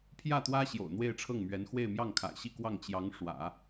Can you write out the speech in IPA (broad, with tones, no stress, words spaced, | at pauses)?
pʰjä˥˩t̪wä˥ ɕjo̰˨˩ʊ̯n̪we˥˧ɪ̯ʈ͡ʂʰɤ˥˩ŋ mɥɛ˧˥nxwe˥˧ɪ̯mjɑ˥˩ŋ kʰa̰˨˩ɪ̯ɕi˥˧kwɑ˥˩ŋ t͡ɕjɑ˧˥ŋ ʂwä̰˨˩˦